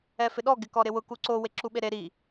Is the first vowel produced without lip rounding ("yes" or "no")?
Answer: yes